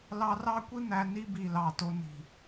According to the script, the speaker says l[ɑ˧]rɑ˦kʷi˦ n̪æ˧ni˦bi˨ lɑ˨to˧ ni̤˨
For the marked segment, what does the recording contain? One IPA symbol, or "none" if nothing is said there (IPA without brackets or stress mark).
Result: ɑ˧